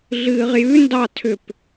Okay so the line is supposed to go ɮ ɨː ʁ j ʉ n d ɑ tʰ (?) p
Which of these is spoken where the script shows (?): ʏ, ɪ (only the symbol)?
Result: ʏ